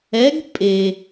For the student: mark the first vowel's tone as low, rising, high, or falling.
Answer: rising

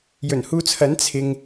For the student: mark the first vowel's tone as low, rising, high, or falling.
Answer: low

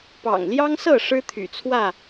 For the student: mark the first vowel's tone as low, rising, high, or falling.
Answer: low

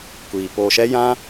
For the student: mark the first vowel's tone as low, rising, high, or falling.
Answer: low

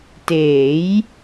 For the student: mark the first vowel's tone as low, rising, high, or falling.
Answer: rising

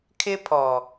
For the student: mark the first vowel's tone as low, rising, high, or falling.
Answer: high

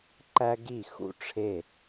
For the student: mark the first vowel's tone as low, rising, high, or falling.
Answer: high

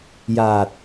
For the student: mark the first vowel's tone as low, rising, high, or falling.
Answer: low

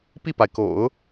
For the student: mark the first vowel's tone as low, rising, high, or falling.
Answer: falling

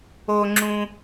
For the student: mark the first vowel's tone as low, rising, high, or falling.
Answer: high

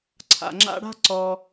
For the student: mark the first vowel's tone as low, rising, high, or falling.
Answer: low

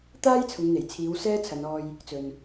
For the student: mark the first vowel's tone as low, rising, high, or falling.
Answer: high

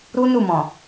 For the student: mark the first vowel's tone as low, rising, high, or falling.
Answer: high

